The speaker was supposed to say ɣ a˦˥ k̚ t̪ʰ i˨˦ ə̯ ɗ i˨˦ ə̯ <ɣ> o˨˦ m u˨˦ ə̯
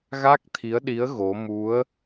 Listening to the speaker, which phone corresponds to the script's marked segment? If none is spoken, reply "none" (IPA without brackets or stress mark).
ɣ